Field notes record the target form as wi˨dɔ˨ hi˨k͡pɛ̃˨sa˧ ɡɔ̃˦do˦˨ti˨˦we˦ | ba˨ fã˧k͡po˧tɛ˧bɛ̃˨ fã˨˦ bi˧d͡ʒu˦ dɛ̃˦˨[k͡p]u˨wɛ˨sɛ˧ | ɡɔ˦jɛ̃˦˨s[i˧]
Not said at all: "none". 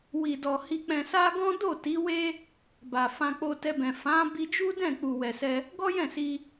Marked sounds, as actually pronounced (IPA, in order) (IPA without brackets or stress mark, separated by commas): k͡p, i˧